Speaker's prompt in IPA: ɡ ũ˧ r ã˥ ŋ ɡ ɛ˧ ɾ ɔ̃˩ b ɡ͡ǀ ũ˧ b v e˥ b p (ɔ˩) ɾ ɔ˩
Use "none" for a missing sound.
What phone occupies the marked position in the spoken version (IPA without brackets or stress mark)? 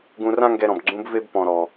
ɔ̃˩